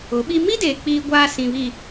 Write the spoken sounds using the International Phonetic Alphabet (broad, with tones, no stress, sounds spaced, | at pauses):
ʊ˨˦ ɓ i˦ m i˦ d eː˨ k͡p iː˦ ɡʷ aː˦ s ĩ˨ β i˨